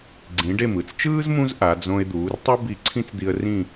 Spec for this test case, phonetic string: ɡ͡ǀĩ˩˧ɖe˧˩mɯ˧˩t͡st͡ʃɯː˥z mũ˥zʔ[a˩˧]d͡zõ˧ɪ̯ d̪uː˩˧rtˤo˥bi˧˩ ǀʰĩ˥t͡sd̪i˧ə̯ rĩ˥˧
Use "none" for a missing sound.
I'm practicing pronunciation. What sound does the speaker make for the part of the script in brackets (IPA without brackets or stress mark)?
a˩˧